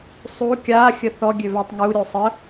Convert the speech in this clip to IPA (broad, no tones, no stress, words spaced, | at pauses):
sˤu kʲa xʲəθɔ ɡʲøvatˤŋu ɾʲosˤə